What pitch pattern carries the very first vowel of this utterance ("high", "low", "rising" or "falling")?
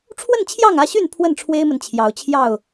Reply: falling